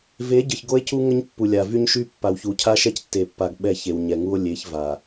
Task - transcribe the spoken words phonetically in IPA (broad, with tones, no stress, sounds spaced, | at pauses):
v e˨˦ ɟ ə˨ ç ɡ o˦ e̯ c u˦ ŋ ə˦ ɲ pː u˨ lʲ a˨ v y˦ ɲ ʃ y˦ pː a˨ w ç u˨ cʰ a˦ ʃ ɛ˦ c tː e˨ pː a˨ ɡ ɓ ɛ˦˨ ç e˨ w ɲ ɛ˨ ŋ u˦ o̯ lʲ e˨˦ ç v a˨